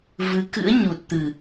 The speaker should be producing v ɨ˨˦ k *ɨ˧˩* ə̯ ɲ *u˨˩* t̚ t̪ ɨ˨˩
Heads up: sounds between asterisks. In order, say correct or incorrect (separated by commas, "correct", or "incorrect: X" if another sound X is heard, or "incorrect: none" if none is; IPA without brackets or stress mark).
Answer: incorrect: ɨ̰˧˥, correct